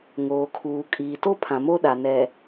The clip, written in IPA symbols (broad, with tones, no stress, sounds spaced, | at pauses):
ŋ oː˨ kʰ uː˨ kʼ iː˨ t o˦ pʰ ã˨ m o˦ ɗ a˨ n ɛ˨